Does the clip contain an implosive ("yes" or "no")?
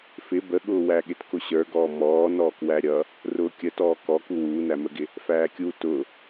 yes